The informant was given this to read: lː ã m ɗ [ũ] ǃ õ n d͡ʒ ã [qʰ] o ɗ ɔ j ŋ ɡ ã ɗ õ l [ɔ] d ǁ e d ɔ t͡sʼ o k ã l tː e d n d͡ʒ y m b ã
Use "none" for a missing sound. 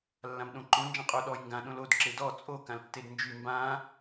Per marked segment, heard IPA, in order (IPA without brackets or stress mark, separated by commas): õ, qʼ, o